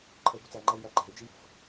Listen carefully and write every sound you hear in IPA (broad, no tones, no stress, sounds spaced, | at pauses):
ǃʰ ə y̯ b u t͡s æ ŋ͡ǃ æ i̯ j æ ǃ æ̤ y̯ d͡ʒ i j ə̤ f